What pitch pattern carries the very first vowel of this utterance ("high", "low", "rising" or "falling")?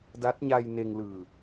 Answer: rising